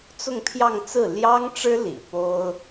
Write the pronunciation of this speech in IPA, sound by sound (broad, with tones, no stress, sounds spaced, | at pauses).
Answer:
t͡s ʊ˥˧ ŋ pʰ j ɑ˥˧ ŋ t͡s ɹ̩˥˩ l j ɑ˥ ŋ ʈ͡ʂ ɻ̩˥ l ḭ˨˩ p o˥ ʊ̯